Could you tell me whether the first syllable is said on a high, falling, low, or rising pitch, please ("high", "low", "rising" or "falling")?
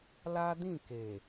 high